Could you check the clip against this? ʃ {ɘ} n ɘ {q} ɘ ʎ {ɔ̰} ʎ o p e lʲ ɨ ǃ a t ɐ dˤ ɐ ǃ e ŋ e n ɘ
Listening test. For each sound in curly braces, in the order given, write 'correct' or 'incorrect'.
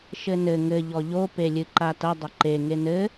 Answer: correct, incorrect, incorrect

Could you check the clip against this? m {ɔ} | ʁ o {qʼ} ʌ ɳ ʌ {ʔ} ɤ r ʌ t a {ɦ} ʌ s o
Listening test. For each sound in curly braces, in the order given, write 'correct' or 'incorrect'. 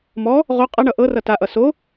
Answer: correct, correct, correct, incorrect

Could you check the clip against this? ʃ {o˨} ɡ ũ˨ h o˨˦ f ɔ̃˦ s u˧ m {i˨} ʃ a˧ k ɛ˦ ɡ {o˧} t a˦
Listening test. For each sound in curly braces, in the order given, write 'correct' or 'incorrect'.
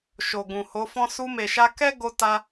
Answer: correct, incorrect, incorrect

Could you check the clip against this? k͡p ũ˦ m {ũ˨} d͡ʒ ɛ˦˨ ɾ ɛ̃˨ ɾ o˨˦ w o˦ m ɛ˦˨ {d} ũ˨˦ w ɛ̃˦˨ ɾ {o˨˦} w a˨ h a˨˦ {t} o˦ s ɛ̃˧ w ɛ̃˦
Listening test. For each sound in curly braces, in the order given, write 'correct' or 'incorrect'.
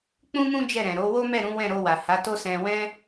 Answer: incorrect, incorrect, incorrect, correct

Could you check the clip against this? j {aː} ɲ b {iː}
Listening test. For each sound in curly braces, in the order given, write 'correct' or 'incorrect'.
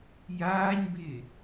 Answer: correct, incorrect

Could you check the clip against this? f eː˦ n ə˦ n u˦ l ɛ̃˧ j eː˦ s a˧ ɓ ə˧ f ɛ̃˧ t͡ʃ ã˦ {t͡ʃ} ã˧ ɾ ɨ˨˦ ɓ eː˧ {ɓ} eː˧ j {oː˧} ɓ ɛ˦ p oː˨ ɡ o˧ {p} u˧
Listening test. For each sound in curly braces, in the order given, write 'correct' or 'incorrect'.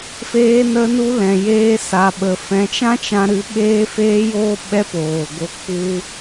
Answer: correct, incorrect, correct, incorrect

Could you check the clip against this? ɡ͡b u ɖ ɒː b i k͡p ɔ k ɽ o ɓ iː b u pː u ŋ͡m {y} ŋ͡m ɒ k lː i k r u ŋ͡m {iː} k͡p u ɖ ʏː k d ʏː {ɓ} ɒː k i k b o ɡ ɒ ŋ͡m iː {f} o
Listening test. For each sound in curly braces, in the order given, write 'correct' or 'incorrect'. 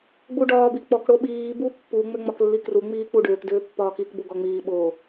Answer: incorrect, correct, incorrect, incorrect

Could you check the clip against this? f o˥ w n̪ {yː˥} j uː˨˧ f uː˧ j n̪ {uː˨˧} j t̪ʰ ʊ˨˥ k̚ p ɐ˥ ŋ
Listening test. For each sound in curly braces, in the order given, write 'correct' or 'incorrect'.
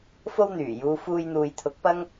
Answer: incorrect, incorrect

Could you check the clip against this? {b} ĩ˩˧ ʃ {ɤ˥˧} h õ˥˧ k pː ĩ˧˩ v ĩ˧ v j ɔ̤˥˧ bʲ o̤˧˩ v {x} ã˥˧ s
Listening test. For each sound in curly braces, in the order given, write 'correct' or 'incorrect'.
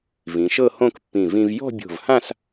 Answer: incorrect, correct, incorrect

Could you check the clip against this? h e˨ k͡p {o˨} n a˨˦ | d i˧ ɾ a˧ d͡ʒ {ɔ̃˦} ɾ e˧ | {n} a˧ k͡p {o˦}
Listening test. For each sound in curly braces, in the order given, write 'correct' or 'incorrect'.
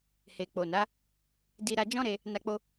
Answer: correct, correct, correct, incorrect

